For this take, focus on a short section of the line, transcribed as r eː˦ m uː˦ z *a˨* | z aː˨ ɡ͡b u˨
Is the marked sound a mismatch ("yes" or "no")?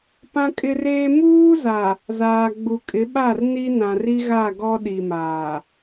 no